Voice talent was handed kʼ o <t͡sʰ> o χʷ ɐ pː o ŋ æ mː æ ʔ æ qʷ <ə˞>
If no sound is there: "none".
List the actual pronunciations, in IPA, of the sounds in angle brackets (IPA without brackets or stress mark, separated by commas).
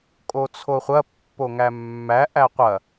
t͡sʰ, ɐ